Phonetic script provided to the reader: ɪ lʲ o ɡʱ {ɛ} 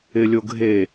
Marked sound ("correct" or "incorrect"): incorrect